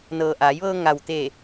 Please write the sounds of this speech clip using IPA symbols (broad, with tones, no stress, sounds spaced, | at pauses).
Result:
n ɤː˩ ʔ aː˩˧ j ʋ ɤː˧ ŋ a˩ w t̪ eː˧˩